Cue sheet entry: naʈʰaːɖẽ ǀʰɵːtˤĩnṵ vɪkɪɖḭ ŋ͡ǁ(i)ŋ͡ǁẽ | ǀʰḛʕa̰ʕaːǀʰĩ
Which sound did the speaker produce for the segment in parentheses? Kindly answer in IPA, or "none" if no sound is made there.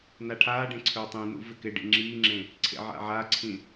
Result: iː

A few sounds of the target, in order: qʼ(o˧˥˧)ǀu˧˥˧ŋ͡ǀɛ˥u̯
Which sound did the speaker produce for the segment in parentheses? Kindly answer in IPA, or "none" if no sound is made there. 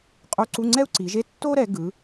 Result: o˧˥˧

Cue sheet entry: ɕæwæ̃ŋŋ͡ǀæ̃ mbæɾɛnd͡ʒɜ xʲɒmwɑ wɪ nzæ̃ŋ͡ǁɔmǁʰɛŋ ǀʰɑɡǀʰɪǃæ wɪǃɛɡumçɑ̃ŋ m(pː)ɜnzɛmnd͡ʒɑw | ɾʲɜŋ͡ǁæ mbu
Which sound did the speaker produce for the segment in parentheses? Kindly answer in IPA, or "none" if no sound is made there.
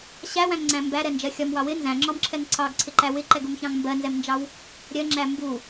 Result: b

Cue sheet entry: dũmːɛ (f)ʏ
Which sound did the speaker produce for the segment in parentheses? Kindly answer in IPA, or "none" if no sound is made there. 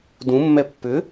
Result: pː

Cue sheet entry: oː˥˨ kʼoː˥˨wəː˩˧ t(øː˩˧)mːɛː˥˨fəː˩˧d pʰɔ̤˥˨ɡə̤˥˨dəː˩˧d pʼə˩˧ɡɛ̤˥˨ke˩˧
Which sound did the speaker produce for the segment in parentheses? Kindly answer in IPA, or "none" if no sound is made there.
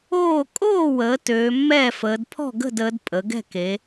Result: øː˩˧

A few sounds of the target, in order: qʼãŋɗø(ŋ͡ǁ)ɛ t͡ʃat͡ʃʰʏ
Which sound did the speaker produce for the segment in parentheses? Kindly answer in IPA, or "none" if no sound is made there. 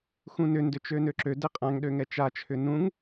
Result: ŋ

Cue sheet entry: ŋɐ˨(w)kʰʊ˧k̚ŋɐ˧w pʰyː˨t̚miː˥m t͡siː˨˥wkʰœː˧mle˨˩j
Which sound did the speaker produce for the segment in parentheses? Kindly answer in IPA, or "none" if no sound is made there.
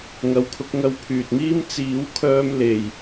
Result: w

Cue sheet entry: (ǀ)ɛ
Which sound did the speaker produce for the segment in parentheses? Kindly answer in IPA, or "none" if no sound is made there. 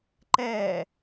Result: ǃ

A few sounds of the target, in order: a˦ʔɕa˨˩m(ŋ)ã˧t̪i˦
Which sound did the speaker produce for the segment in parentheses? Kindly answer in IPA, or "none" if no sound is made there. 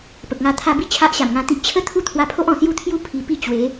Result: ŋ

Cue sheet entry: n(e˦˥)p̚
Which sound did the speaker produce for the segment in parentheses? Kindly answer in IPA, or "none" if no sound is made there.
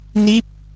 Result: i˦˥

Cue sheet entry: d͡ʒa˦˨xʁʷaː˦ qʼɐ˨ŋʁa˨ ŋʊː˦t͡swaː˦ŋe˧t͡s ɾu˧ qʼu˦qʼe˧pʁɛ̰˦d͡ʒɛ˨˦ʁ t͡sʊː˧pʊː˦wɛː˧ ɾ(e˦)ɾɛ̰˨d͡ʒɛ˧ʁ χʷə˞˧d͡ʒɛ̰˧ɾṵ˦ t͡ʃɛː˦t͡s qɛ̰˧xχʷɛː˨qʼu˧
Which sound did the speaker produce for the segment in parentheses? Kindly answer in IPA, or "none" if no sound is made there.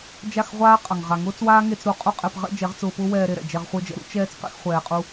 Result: e˧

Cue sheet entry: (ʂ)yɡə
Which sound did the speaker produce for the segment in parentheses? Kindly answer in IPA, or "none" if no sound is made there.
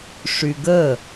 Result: ʂ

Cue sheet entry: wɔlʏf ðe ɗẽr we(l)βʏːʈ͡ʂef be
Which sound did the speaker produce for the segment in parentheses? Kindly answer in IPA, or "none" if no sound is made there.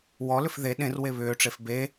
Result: none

